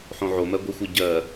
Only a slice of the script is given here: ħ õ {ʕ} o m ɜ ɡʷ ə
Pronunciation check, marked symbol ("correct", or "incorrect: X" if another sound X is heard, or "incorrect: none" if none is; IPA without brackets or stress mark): correct